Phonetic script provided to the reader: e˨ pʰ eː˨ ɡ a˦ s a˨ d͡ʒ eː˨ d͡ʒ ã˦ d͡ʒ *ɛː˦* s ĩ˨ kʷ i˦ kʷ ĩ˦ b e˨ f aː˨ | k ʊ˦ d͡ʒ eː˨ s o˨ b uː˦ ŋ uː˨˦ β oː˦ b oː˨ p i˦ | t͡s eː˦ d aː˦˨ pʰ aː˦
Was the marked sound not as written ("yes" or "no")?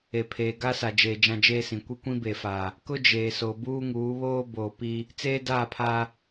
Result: yes